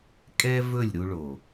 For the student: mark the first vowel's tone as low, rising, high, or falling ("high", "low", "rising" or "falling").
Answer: high